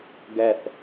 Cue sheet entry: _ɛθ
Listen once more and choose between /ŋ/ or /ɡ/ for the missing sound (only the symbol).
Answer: ɡ